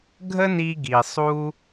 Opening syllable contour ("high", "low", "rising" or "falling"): high